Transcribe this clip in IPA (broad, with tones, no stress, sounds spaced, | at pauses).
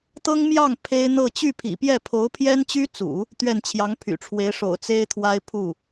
t̪ ɤ˥ ŋ m j ɑ˥˩ ŋ pʰ e˥ ɪ̯ n̪ ɤ˥˧ t͡ɕ y˥˩ pʰ ḭ˨˩ p j ɛ˥˩ pʰ o˧˥ ʊ̯ pʰ j ɛ˥ n t͡ɕ y˥ t͡s ṵ˨˩˦ | t̪ ɥ ɛ˥˩ n t͡ɕʰ j ɑ˧˥ ŋ pʰ y̰˨˩ ʈ͡ʂʰ w e˧˥ ɪ̯ ʂ o̰˨˩ ʊ̯ t͡s e˥ ɪ̯ t̪ʰ w a˥ ɪ̯ pʰ u˥˩